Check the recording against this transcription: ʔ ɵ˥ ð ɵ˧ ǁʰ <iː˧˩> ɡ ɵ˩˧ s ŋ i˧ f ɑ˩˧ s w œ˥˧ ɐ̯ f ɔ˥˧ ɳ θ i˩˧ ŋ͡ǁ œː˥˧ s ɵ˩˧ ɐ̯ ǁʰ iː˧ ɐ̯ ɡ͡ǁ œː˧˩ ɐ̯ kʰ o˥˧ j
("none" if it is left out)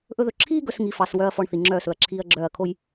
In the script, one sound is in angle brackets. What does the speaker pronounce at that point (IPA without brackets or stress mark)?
iː˥